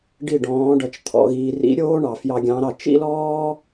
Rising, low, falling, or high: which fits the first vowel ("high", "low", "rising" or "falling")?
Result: falling